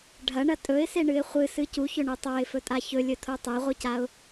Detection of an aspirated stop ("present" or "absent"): present